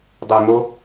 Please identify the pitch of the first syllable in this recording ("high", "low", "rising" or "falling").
low